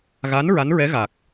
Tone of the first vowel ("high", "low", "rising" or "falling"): rising